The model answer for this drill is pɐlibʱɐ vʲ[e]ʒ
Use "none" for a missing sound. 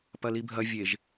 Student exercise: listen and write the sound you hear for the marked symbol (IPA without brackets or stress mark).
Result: e